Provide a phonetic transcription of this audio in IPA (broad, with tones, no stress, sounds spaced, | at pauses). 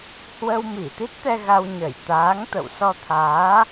h w ə˧ w m i˧˩ t̪ i˦˥ t̚ t̪ ɛ˧ ɣ a˧ w ɲ ə˧˩ j t̪ aː˨˦ ŋ t̪ ə̰˧˨ w s ɔ˧ t̪ʰ aː˨˦